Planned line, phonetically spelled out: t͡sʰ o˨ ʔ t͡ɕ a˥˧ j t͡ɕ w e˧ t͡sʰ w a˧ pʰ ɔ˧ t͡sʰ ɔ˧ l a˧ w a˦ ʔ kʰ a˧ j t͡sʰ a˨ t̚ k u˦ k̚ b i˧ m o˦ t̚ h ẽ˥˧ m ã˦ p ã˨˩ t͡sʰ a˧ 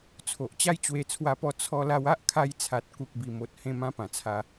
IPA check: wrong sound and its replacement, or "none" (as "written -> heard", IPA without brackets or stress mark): pʰ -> p